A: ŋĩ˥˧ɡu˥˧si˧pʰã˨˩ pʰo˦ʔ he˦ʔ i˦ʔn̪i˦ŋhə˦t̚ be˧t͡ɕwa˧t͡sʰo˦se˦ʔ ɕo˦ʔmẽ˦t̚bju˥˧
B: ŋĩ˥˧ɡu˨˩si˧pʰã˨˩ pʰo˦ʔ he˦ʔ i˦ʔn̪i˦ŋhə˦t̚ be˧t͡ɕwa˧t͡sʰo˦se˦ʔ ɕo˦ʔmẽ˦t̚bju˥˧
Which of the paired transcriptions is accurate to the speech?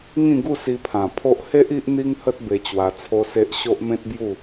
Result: A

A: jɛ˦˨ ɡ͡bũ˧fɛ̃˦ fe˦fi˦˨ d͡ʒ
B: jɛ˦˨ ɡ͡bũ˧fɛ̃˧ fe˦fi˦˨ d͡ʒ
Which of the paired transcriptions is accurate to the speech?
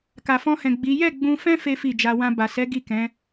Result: A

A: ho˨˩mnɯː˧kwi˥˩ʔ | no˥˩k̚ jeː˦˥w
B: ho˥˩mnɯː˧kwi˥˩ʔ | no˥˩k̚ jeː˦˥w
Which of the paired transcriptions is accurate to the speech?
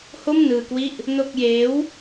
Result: B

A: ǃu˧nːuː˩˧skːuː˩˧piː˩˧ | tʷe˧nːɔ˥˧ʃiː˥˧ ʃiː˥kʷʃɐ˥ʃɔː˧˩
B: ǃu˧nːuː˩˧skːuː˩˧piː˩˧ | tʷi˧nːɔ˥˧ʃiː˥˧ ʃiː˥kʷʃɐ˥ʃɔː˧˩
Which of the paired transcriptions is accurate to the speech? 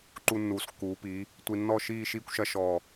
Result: B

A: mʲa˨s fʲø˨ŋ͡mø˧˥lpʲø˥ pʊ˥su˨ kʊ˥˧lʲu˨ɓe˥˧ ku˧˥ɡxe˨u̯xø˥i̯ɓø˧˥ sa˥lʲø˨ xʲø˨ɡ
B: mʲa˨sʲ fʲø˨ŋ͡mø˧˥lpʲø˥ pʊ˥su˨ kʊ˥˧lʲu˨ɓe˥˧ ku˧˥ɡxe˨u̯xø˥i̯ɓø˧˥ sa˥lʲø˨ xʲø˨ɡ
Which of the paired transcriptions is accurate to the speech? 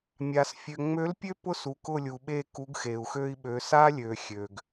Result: A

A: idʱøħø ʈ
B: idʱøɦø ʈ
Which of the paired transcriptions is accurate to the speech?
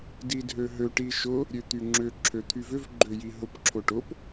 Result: B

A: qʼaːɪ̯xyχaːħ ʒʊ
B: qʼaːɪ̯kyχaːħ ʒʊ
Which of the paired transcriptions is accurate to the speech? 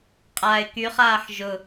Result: B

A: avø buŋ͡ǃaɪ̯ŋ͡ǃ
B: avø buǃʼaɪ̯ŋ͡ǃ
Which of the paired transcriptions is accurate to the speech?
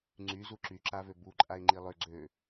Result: B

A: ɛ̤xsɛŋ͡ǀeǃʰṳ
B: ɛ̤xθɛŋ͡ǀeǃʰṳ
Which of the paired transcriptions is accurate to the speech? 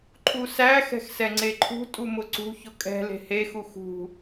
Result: A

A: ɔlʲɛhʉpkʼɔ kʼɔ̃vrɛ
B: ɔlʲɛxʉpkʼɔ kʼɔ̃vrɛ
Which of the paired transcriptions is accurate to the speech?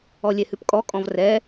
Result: A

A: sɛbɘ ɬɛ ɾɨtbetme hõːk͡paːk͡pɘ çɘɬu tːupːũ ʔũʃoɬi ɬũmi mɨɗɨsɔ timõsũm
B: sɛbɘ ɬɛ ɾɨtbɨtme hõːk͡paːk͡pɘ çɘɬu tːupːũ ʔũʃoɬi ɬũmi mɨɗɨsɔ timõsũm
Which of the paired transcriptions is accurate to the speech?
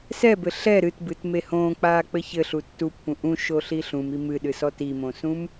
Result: B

